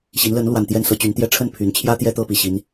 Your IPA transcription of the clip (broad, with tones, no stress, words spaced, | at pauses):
ɕi˨˦nlə˨˦nlwa˨˩n t̪jɛ˥˨nsɤ˦t͡ɕy˨˦nt̪jɛ˥˨ ʈ͡ʂʰə˥˨npʰy˨˦nt͡ɕʰjä˦ t̪jɛ˦ t̪ɤ˦pi˨˩ɕi˦n